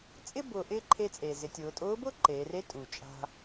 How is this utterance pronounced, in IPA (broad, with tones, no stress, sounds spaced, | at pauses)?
t͡sʼ ɪ˥ b ʊː˧ ʔ ɪː˥ ǃʰ e˧ t͡sʼ eː˩ z ɪ˩˧ tʲ ʊː˩˧ tʼ ʊː˧˥ b ʊː˥ ǃ eː˩˧ r e˧˥ tʼ u˩ t͡ʃʼ a̤˧